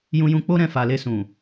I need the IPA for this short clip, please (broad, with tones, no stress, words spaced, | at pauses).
jũ˧jũ˧k͡po˦ɾɛ̃˦˨ fa˨le˧sũ˨